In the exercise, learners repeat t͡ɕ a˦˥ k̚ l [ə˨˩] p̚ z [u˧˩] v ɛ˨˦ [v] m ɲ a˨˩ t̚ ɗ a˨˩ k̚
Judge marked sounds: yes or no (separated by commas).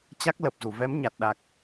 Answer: yes, yes, no